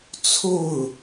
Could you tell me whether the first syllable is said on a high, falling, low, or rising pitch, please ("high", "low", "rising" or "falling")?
falling